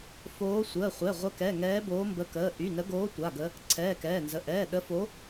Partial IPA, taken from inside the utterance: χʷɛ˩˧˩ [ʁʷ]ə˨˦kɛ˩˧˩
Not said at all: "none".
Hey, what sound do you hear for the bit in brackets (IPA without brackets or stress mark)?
ʁʷ